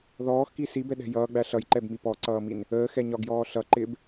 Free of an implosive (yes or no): no